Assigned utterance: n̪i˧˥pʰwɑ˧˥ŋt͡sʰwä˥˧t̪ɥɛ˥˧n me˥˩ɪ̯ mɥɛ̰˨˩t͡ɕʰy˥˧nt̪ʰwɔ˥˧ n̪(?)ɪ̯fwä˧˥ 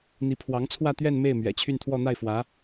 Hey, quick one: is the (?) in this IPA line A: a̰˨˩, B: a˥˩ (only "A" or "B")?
B